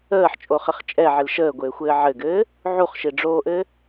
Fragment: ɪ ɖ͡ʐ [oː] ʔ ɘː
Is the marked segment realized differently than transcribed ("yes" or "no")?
no